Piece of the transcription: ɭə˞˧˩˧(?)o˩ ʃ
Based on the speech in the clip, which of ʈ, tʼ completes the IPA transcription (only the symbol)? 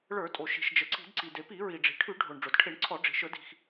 tʼ